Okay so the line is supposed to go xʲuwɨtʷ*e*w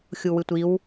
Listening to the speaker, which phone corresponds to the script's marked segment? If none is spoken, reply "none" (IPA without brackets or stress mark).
i